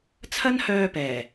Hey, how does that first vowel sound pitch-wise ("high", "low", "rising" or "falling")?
high